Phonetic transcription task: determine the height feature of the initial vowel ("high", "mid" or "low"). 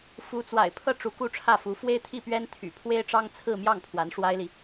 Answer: high